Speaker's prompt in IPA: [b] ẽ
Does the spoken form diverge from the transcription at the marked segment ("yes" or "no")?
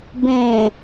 no